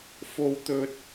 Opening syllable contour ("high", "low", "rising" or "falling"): high